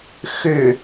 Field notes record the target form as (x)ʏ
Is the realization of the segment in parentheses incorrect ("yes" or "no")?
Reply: no